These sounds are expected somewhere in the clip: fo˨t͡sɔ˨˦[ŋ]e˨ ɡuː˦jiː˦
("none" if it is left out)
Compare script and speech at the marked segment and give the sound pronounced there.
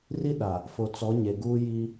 ɲ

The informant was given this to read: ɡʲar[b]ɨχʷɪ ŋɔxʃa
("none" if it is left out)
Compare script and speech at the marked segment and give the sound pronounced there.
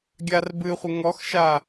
b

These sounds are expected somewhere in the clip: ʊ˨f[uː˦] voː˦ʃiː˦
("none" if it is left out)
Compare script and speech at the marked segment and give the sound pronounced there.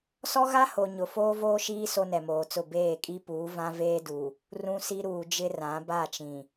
oː˦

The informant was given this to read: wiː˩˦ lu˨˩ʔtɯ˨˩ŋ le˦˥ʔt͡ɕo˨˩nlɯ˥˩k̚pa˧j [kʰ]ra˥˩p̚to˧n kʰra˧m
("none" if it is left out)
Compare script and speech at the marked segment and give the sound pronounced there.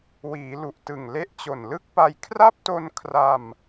kʰ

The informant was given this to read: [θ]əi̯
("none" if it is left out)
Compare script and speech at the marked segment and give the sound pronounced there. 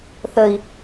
θ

